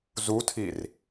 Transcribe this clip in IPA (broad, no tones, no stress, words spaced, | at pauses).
zutʰir